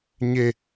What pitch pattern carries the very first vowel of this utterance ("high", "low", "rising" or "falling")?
falling